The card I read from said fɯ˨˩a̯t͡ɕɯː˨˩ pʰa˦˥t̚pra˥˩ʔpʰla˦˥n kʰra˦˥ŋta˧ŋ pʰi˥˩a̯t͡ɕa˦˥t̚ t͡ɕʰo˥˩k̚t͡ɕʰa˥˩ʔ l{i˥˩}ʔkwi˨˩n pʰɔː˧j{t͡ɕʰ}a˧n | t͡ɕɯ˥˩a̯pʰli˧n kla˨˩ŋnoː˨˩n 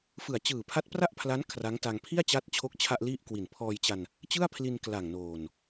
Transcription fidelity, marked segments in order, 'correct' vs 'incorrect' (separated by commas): correct, incorrect